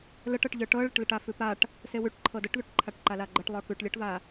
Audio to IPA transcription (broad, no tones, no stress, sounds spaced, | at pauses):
l ə ʈ ɤ ʈ ʎ ə˞ ʈ ɤ ɭ ə ʈ l ə ʈ a f ʉ p a ʈ | s e w ʉ ʈ ǃʰ ɤ d ə ʈ ð ʉ ʈ ǃʰ a ʈ ǃ a l a ɡ͡ǃ ə ʈ lˠ ə˞ k ʉ ʈ lʲ ɤ ʈ v a